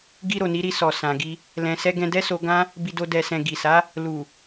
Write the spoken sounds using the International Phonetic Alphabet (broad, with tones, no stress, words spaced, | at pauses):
ɡi˧ ɾo˨ni˨˦ɾi˧ sɔ˨ sã˨ɡi˧ | lɛ̃˨sɛ˧ ɡɛ̃˧ dɛ˦so˧ ɡã˦ | bi˨do˨ dɛ˨sɛ̃˨ ɡi˨sa˨˦ | lu˨